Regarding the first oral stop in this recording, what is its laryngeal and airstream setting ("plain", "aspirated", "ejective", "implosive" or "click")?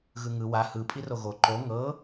ejective